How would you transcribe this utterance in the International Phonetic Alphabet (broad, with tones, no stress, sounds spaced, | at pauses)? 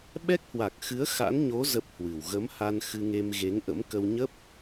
ɓ ɛ˦˥ k̚ h w a˨˩ k̚ x ɨ˨˦ ə̯ x a̰˧˥ n ɲ o˨˦ z ə˦˥ p̚ h w ɨ˨˩ w ɣ ə˨˦ m h a˧ n x ɨ˧ ŋ e˧ m ɣ e˨˦ ŋ ʔ ə̰˧˥ m k ə˧ w ɲ ə˦˥ p̚